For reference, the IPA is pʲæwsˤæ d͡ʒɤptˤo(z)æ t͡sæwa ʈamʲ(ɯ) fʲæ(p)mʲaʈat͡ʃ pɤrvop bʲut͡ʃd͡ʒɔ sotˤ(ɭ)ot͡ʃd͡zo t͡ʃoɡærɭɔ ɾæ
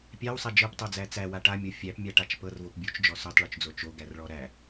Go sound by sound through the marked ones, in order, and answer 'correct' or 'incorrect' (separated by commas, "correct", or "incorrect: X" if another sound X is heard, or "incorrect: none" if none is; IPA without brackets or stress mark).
incorrect: d͡z, incorrect: ɤ, correct, correct